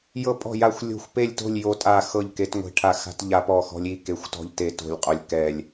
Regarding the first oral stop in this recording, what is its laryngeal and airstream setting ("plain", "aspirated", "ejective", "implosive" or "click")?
ejective